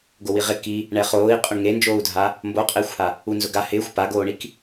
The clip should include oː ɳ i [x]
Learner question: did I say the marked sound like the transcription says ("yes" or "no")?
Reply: no